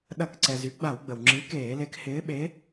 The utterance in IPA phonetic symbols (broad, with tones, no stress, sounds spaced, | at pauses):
ɗ ɐ˧˩˧ k ǀ ɛ˩ z y˨˥ ɡ͡b a˧˩˧ w ɡ͡b ə˩ w ŋ͡ǁ i˨˥ k eː˧˩˧ l e˨˥ k h ɪː˨˥ ɓ e˨˥